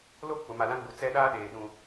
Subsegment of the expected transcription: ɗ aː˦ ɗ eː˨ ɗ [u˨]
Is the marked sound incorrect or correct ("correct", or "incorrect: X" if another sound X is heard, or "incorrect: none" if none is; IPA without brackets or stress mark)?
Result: incorrect: ũ˨